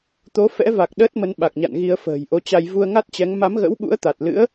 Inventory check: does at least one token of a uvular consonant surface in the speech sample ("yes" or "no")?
no